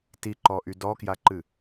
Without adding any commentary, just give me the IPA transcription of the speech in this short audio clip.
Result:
tiǃɔʔy dɔkjaǃɨ

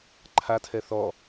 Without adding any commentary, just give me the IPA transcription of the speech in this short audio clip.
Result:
ǃʰatʰɛ θɔ

